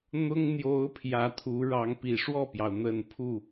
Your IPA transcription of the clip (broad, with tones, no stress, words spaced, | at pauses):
n̪ʊ˥ŋ n̪jo˧˥ʊ̯ pʰjä˧˥t̪ʰu˧˥ɻɑ˧˥ŋ pi˨˩ ʂwɔ˥˩pjɑ˩ʊ̯ n̪ə˨˩n pʰu˥˩